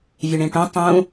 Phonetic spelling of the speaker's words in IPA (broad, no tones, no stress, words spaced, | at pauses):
vʲuɳĩʈũ tˤũ